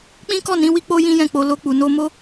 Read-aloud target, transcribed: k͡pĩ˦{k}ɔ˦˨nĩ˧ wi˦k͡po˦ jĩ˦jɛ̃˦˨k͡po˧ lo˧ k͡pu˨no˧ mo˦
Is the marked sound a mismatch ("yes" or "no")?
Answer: no